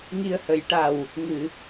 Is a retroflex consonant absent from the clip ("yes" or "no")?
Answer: no